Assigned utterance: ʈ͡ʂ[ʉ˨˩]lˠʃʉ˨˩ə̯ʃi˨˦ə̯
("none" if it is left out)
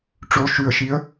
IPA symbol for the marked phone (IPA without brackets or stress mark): ʉ˨˦